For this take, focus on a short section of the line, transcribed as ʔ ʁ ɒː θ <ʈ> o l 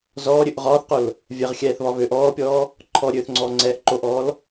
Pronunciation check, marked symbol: incorrect: q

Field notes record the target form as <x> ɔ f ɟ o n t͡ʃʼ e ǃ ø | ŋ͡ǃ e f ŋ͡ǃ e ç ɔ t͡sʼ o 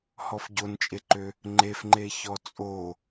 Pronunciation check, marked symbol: incorrect: h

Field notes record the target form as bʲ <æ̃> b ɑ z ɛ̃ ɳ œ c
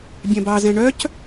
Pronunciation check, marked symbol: correct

